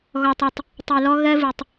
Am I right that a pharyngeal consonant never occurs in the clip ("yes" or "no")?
yes